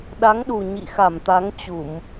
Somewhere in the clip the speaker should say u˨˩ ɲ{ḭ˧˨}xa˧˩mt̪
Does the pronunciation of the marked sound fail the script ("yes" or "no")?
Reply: no